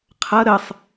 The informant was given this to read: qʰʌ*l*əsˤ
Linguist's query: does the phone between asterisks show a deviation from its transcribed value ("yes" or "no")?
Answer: yes